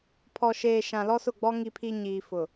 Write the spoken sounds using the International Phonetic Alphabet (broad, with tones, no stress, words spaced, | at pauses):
pʰɔ˨ʃeː˨ ʃã˨lɔ˦sʊ˦˨ɡ͡bɔ˦ ŋi˨pʰi˨ ɲiː˨fʊ˨